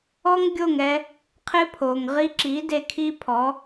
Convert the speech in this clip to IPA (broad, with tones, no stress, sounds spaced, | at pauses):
ɔ˦ ŋ ɡʲ o˦˨ ŋ ɛ˧ | qʰ ɪ˦ pʰ o˨ ŋ ʁ i˧ ǁ i˨˦ d e˧ kʰ i˦ pʰ ɔ˨˦